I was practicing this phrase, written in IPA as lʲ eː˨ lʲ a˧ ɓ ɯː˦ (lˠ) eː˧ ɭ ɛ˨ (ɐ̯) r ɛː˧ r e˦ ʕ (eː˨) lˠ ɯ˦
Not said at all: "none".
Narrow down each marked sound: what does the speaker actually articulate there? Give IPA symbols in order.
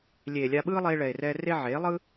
lˠ, e̯, eː˨˦

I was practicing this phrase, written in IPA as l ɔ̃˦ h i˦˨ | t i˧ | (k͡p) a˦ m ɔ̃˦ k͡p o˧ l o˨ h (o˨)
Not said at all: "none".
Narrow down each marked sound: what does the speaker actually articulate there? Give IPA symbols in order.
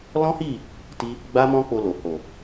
ɡ͡b, o˨

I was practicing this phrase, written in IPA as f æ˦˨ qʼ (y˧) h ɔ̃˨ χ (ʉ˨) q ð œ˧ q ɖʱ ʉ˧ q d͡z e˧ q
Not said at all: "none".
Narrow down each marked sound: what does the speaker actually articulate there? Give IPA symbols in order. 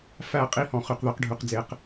i˧, ʉ˨

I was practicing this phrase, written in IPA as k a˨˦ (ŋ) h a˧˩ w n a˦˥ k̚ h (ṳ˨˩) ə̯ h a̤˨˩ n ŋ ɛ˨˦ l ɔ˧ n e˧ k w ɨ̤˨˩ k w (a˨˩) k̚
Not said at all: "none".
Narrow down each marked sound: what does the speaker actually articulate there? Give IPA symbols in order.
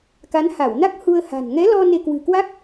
n, u˧, a˦˥

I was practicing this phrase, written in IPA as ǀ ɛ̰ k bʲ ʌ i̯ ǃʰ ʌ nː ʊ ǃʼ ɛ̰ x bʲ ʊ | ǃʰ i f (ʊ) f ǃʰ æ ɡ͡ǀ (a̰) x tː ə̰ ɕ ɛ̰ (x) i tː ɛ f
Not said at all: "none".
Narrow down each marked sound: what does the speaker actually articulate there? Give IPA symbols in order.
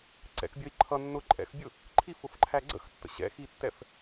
ʊ, ə̰, x

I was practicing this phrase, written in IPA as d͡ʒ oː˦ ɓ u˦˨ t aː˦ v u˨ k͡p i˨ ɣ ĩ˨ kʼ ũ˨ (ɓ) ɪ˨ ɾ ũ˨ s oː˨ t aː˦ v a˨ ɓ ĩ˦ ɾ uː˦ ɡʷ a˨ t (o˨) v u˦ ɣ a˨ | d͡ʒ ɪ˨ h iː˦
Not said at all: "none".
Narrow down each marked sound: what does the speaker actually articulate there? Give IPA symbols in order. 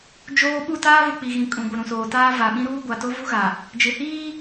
ɡʷ, o˦

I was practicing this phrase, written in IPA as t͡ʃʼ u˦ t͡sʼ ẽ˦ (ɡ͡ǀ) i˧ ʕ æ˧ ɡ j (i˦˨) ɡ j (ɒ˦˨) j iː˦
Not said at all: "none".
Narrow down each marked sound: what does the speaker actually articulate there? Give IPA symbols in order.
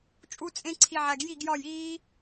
ǀʰ, i˦˨, ɒ˦˨

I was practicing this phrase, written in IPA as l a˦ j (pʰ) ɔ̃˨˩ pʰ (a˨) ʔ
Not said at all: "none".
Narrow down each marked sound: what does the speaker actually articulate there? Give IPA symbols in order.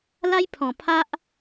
pʰ, a˦

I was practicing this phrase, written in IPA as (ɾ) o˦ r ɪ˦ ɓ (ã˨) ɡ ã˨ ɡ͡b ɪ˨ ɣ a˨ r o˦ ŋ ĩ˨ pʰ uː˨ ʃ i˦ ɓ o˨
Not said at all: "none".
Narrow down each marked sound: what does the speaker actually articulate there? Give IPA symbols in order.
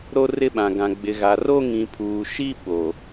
ɾ, ã˨

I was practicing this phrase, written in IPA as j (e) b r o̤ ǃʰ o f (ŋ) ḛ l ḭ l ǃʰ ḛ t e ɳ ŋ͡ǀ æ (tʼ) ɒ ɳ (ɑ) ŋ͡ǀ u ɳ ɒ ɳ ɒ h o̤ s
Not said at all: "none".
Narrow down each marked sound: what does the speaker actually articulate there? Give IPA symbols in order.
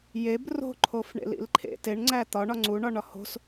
e, ɳ, t̪, ɒ

